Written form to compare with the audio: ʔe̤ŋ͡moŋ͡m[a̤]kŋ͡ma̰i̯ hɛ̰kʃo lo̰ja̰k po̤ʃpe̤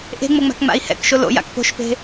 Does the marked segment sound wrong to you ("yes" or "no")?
no